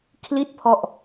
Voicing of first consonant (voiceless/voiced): voiceless